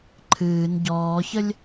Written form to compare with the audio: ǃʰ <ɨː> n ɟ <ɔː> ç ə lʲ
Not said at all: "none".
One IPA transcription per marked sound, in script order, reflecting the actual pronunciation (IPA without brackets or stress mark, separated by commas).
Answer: ɨː, ɔː